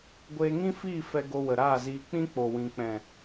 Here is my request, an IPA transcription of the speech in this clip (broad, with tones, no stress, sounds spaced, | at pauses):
ɡʷ eː˧ ŋ ĩ˦ f iː˦˨ f ɛ˧ ɡ o˧ w ə˨ ɾ aː˦˨ z iː˧ k͡p ĩ˦ k͡p o˨ w ĩ˨ k͡p ɛ̃˨